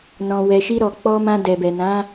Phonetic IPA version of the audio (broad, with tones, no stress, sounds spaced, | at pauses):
n ɔ̃˨ w ɛ˨ ʃ i˧ ɾ ɔ˨ k͡p ɔ˧ m ã˧ d ɛ˨ b ɛ˨ n ã˨˦